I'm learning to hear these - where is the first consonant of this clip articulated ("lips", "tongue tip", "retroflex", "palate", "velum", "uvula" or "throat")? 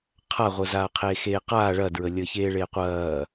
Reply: uvula